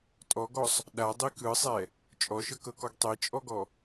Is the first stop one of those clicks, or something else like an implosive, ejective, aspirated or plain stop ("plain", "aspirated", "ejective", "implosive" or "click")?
ejective